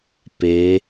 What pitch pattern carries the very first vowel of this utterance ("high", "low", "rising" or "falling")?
rising